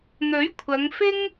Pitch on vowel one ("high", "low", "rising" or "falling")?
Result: rising